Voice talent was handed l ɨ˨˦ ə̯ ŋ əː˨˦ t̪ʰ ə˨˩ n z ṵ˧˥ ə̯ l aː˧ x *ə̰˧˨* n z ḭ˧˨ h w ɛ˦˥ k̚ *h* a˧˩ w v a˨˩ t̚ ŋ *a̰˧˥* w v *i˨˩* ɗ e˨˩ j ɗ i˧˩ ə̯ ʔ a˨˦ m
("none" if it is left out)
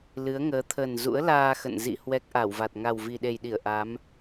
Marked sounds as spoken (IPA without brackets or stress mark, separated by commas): ə̰˧˨, ʔ, a˨˩, i˨˩